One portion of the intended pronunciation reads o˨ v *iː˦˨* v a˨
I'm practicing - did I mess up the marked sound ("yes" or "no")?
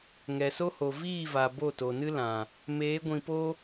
no